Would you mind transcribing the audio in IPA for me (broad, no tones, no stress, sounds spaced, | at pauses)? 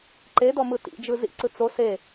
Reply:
ǃ e d ɔ m ɯ t ḭ d͡ʒ ɯ z ḭ ǀ ɯ t͡s o s e